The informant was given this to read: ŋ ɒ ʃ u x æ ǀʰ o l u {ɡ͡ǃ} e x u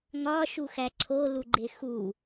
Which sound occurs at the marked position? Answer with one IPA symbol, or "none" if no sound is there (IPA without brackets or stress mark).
ɡ͡ǃ